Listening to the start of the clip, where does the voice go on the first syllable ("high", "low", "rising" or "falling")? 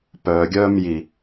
low